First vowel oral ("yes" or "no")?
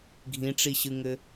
no